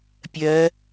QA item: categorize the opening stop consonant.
plain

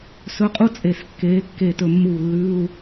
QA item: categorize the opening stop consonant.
ejective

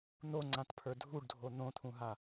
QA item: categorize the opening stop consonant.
click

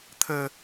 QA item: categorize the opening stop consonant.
aspirated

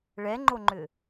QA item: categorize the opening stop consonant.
click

